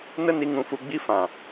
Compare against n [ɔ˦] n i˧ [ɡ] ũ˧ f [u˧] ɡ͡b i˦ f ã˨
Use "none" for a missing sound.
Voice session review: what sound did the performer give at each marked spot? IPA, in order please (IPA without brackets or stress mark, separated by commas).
ə˦, ŋ, u˧